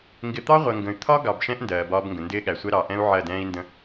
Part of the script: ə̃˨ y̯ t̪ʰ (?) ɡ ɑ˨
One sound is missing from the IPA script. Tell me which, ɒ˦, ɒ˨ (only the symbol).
ɒ˦